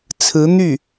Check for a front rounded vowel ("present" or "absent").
present